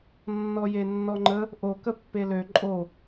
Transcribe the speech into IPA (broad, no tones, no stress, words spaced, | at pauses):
nːɔjenːɔŋ͡ǃə | ʔokə pːelø ǃʼo